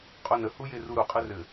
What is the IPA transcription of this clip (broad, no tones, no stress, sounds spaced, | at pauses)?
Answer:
qʼ o n ə h u j e r u ɾ u qʼ ɘ r ɘ